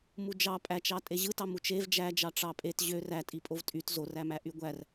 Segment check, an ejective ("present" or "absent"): present